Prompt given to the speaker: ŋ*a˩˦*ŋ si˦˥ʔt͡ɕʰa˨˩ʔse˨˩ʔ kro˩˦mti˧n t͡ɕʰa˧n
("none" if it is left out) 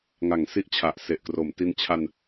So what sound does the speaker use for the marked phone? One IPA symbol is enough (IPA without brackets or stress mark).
a˩˦